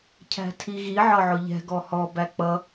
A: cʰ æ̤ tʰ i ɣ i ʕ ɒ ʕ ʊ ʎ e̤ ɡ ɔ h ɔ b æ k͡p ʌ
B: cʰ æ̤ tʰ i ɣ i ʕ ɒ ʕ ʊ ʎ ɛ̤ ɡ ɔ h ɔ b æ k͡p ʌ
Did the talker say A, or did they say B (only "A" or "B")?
B